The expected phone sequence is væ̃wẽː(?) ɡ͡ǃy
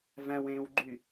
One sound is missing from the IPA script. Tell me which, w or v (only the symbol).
w